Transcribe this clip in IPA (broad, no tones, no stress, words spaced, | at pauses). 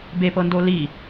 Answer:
bepɤndo li